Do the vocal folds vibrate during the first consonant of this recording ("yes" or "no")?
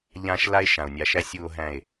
yes